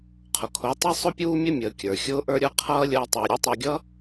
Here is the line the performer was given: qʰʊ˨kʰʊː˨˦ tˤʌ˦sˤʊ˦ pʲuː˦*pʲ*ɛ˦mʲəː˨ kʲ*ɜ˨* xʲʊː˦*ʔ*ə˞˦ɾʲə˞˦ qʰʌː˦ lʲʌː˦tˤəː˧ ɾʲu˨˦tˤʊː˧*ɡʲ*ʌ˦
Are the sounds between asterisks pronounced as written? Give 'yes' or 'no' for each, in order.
no, no, yes, yes

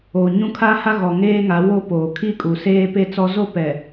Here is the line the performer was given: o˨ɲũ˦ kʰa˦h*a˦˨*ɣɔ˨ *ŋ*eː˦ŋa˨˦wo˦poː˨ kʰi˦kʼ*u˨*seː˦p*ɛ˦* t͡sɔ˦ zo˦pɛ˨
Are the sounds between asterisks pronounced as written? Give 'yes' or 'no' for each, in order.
no, yes, yes, no

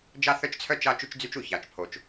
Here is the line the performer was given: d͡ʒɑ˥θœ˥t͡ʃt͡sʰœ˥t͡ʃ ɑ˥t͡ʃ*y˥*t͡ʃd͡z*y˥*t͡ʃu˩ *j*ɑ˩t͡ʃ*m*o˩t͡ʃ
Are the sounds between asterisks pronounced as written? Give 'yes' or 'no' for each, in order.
yes, yes, no, no

